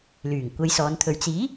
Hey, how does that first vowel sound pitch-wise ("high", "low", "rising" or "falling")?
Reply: low